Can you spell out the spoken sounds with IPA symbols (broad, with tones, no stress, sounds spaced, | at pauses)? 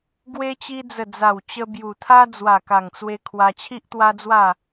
ɡ w e˧ t͡ɕ i˧ d͡z ə˨˩ d͡z a˨˩ w t͡ɕ ə˧ b j u˨˩ t̪ʰ a˦ d͡z w a˨˩ k a˨˩ ŋ t͡s w e˧ kʰ w a˧ t͡ɕʰ i˦ ʔ t̪ w a˦ d͡z w a˥˧